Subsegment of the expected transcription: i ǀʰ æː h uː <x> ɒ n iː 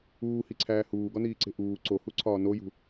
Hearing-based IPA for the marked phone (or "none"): ɡ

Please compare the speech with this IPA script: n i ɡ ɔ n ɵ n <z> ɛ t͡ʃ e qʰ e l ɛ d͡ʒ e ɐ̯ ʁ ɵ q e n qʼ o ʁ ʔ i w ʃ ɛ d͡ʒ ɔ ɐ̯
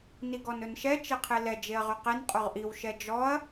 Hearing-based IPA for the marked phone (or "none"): ʃ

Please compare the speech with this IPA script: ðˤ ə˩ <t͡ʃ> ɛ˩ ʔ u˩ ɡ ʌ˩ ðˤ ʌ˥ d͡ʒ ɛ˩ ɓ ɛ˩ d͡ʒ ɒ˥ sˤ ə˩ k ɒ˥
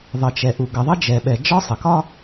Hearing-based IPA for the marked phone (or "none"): t͡ʃ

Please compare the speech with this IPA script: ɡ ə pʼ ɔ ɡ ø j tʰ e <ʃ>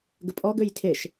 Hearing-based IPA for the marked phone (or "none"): ʃ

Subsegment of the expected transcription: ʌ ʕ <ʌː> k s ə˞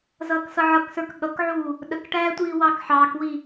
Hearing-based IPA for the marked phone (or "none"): ʌ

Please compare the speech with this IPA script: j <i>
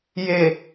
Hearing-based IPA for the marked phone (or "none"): e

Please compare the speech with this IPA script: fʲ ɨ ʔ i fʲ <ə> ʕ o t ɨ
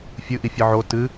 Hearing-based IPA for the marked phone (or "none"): ɨ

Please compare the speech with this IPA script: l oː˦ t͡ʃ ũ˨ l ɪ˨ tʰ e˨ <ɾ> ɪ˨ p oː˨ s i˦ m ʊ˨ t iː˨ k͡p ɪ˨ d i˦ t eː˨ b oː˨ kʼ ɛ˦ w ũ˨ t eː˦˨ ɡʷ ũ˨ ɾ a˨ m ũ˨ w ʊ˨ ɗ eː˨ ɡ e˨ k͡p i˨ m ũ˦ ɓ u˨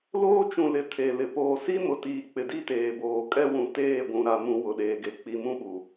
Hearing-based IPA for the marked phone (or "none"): l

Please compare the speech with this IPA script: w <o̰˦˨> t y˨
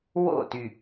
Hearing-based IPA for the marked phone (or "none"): o̰˦˨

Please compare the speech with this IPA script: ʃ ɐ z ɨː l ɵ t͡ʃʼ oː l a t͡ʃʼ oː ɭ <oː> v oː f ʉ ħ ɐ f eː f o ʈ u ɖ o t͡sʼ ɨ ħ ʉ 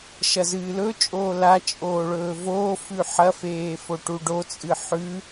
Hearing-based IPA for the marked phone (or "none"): ɵː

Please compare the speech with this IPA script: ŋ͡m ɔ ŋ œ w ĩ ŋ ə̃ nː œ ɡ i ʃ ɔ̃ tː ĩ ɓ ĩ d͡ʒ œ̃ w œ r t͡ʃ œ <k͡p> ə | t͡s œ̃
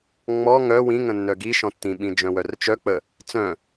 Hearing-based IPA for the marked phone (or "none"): k͡p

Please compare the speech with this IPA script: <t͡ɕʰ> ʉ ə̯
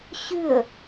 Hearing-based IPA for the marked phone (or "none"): ɕ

